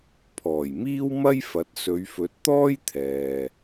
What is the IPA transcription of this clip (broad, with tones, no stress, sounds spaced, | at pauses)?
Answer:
pʰ ɔː˨˩ j m iː˥ w m ɐ˥ j f ɐ˨˥ t̚ s ɵ˨˧ ɥ f ɵ˨˥ t̚ t̪ ɔː˥ j t̪ʰ ɛː˨